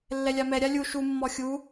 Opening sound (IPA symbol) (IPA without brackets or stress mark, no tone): lː